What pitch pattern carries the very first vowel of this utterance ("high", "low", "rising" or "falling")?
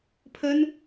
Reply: high